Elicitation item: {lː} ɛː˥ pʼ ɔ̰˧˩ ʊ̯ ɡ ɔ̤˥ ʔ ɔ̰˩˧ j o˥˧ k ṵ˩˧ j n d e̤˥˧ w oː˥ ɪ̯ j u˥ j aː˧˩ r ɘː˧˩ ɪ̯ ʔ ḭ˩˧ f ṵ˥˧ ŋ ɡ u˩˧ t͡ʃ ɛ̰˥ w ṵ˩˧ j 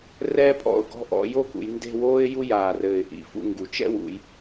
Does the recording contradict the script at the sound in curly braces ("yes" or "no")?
yes